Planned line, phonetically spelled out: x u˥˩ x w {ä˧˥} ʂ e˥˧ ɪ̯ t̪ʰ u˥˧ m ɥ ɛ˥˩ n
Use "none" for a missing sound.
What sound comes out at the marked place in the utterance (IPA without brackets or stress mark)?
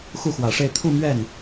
ä˨˩